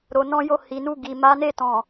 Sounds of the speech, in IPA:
ɾo˨ nɔ̃˧jo˧hi˨nu˧ ɡi˨ma˨˦ne˦˨ tɔ̃˨

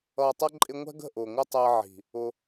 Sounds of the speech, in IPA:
ʌː˨tˤʌ˧ ǃʼɪ˧ŋʷɛ̤˦ɡə̤˦˨ʔʊː˨ ŋʷə˧ tˤɜ˧ʕi̤˨ | ʊ˧

